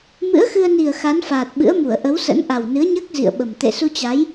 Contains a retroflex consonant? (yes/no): no